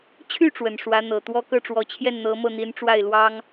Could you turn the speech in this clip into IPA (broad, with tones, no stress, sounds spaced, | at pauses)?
t͡ɕʰ y˥˩ ʈ͡ʂ w ə˨˩ n ʂ w ä˧˥ n̪ ɤ˨˩ t̪ w ɔ˥ k ɤ˥˩ ʈ͡ʂ w ɔ˨˩ t͡ɕʰ j ɛ˥˩ n n̪ ɤ˧˥ m ɤ˥˩ n̪ i˧˥ n ʈ͡ʂ w a˥˩ ɪ̯ l w ɑ˥ ŋ